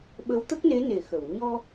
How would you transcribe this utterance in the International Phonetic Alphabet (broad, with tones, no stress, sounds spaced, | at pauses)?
ɓ ə˧˥ w t̪ ə˦˥ k̚ n e˧˥ n e˨˩˨ x ə˨˩˨ w ɲ ɔ˧